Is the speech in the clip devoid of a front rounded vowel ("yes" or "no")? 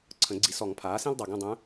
no